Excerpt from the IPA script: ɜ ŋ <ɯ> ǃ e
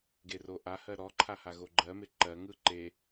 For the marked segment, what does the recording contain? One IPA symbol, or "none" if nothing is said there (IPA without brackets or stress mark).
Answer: ɯ